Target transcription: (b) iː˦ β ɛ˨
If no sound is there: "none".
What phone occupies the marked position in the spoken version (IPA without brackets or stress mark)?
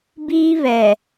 b